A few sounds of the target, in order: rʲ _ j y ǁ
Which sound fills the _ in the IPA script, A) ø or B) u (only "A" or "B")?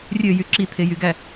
A